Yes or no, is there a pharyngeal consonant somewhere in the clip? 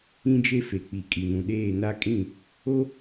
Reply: no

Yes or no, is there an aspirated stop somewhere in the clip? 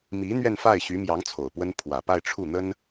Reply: yes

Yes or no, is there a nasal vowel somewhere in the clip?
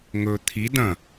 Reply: yes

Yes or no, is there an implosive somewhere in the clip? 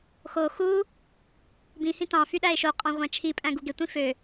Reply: yes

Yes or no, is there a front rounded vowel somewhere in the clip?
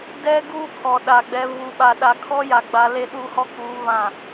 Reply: no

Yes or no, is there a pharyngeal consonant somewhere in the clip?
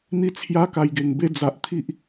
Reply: no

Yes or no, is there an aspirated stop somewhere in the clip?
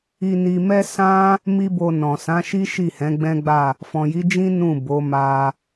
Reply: no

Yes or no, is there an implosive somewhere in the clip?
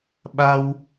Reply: yes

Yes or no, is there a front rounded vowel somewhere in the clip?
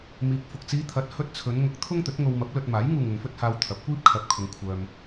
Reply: yes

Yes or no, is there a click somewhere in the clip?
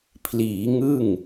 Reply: no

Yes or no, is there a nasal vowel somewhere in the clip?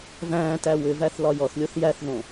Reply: yes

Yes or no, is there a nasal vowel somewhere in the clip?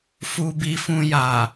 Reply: yes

